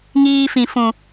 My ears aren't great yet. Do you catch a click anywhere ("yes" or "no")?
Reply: no